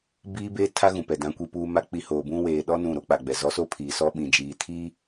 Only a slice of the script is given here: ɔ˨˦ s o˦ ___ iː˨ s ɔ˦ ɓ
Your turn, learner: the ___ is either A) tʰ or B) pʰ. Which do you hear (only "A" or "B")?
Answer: B